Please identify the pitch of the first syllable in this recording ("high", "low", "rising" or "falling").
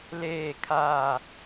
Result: falling